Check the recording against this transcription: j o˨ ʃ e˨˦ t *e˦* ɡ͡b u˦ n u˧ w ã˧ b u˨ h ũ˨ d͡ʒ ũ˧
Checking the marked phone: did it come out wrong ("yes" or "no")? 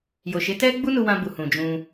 yes